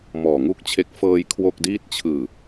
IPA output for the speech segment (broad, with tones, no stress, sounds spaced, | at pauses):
m ɔː˨˩ ŋ u˦˥ k̚ t͡ɕʰ e˦˥ k̚ f ɤː˧ j kʰ w o˥˩ k̚ d iː˥˩ t̚ t͡ɕʰ ɯː˨˩